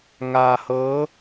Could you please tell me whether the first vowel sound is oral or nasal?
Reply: oral